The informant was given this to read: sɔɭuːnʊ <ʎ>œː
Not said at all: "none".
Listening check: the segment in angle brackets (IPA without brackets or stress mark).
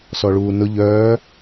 ʎ